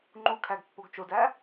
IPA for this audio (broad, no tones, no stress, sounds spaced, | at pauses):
ŋ͡ǃ u kʰ æ ɡ pː o ɡ t͡ʃ o d æ